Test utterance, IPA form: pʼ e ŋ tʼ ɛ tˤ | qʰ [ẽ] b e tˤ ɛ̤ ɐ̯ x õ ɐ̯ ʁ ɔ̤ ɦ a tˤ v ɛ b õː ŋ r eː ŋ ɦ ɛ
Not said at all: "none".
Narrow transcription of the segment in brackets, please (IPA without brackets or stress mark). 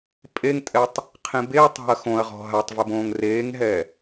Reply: ẽ